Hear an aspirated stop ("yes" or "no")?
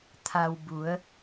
yes